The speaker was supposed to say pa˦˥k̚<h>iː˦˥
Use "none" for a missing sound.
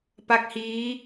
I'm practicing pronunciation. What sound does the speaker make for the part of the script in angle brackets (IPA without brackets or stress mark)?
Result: h